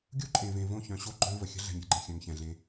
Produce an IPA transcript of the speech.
ɡʲu˦ǃʼẽ˨vẽ˨ võ˦˨çœ̃˨ɕo˦ ɡ͡ǃœ̃˦və˨ xʲə̤˦ ɮɛ̤˨ɲɾʲe̤˦ɡ͡ǃẽ˨ xʲœ̃˨ŋçɛ̃˨ɮẽ˦

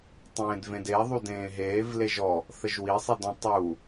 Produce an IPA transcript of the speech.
tˤẽːdvẽdeðˤu dẽːɦeːv leʒɔ | θəʒwisˤidɔ̃ tˤu

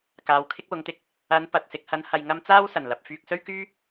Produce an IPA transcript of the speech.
kaː˨˧wkʰɪ˥k̚wʊ˨˧ŋt̪ɪ˥k̚ | ɐ˨˧n pɐ˨t̚sɪ˧k̚ hɐ˨˧n hɐ˧jŋɐ˥m t͡saː˥wsɐ˨˩nlɐ˨p̚ fyː˧k̚sɵ˥ɥkyː˥

